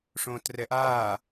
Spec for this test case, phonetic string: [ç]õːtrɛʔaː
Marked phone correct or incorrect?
incorrect